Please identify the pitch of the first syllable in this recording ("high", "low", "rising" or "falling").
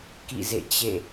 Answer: falling